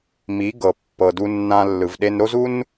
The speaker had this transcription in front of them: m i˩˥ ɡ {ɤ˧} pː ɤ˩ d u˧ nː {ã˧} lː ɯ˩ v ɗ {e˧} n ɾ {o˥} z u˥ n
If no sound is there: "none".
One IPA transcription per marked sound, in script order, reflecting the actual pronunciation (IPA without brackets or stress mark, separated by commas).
ɤ˩, ã˧, e˧, o˥